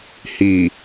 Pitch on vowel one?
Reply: low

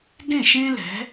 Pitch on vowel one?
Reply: falling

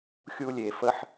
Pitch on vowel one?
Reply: high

